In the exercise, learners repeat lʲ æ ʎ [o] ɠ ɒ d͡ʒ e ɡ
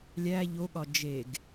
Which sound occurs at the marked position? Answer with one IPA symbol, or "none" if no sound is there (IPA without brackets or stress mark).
o